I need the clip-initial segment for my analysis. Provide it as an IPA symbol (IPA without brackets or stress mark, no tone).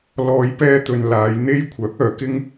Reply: l